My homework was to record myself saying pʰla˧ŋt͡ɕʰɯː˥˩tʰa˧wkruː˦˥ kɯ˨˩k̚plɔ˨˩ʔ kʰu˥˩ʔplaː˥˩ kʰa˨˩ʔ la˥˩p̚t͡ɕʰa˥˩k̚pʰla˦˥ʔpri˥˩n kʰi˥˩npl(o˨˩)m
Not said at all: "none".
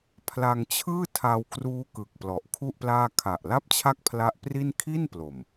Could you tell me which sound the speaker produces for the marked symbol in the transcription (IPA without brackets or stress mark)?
o˨˩